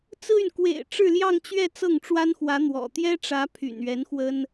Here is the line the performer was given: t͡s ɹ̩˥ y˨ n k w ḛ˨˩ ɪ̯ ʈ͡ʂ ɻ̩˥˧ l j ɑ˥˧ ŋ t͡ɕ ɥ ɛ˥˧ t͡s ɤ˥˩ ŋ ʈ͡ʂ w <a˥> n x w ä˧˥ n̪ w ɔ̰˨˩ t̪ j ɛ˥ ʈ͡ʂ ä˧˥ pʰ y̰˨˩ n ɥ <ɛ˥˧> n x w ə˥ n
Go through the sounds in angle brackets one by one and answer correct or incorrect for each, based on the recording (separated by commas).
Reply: correct, incorrect